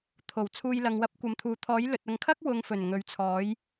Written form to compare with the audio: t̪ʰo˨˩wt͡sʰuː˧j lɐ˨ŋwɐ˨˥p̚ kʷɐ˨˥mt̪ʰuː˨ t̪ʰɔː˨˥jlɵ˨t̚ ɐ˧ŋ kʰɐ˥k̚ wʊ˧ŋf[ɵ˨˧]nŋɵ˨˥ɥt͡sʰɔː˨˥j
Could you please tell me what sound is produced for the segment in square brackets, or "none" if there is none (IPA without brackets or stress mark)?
ɵ˨˩